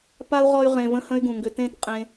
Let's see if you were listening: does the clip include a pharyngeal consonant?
no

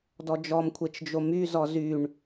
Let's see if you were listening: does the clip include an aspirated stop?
yes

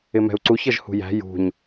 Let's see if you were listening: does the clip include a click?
yes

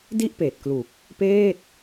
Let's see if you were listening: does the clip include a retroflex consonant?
no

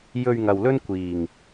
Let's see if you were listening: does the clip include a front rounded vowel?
no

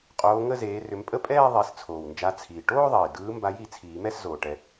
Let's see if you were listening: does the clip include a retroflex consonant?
yes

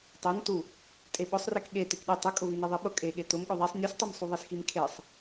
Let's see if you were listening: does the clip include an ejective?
yes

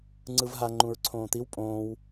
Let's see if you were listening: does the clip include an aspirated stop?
yes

